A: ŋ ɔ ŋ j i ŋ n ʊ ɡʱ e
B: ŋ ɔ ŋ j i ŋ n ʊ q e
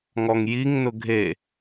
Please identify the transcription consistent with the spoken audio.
A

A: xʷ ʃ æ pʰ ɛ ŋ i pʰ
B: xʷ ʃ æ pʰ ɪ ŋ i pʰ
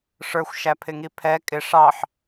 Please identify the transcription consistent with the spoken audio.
B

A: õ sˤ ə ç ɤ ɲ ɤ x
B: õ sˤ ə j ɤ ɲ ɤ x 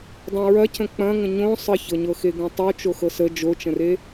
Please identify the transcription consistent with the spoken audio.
A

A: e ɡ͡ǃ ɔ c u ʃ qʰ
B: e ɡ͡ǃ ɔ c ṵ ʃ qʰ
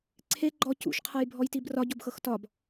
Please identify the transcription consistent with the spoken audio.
B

